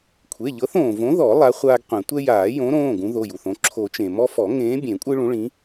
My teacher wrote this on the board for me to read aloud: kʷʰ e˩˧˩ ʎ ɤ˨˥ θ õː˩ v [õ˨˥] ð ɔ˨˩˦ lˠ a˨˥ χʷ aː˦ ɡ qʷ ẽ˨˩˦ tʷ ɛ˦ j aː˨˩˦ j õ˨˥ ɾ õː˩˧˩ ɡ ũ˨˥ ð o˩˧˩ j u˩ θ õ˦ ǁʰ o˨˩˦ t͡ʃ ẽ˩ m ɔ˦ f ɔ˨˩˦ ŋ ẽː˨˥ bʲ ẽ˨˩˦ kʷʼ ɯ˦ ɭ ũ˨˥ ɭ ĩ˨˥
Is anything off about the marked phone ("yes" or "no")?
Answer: no